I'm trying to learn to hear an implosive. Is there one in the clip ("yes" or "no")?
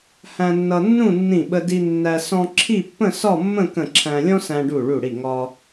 yes